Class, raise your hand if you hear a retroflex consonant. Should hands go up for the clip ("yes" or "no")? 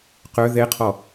no